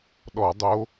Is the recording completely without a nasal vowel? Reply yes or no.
yes